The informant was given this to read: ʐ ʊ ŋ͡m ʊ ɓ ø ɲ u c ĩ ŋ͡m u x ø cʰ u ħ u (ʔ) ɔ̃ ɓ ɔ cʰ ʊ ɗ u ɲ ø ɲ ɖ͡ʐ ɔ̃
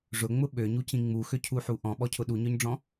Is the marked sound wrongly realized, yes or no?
no